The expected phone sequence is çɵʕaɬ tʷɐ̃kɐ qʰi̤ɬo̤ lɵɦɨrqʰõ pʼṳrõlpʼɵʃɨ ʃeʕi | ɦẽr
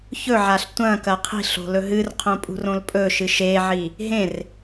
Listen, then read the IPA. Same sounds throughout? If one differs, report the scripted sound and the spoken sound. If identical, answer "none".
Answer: none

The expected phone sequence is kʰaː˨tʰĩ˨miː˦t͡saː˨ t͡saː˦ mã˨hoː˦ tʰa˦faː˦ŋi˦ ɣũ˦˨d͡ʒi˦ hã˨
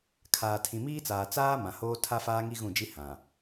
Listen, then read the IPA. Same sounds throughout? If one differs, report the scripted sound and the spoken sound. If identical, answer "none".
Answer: none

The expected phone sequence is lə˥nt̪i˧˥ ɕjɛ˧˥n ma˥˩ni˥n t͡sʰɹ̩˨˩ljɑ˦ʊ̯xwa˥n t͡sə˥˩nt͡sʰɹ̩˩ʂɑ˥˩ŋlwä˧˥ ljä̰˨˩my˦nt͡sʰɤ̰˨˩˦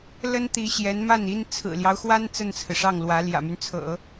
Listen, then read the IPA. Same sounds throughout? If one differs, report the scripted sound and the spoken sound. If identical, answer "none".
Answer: none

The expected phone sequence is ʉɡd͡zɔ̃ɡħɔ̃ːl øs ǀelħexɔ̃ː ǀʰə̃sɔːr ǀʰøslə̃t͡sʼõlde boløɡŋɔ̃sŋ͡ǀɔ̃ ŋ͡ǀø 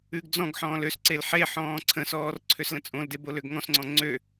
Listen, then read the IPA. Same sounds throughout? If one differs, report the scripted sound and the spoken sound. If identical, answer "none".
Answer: x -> ħ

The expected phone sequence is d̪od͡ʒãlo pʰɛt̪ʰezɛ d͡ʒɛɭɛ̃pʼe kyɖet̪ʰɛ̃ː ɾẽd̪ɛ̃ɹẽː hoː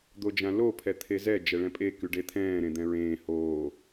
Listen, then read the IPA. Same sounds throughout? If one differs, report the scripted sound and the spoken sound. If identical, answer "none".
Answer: none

